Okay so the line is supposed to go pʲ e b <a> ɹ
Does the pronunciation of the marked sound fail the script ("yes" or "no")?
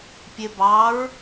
yes